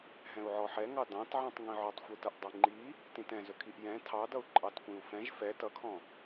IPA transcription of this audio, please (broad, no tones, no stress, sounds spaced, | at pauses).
ɦ ɛ̃ u̯ ʕ ɔ ħ ɛ ŋ ɑ d ɑ̃ t ʕ ĩ tˤ ŋ ĩ ʕ ɵ tˤ xʷ ɯ t ʌ ʔ dˤ i ŋ͡ǃ i | t ĩ t ɛ̃ z ɵ kʰ i ʔ j ɛ̃ tʰ ɑ d ʌ u̯ ǃʼ ɑ t kʷ ĩ u̯ f ɛ̃ ʒ f ɛ t ʌ kʰ ɔ̃